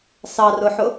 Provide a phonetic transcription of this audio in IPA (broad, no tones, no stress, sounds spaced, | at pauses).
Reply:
s ɑ r ʊ ħ ʊ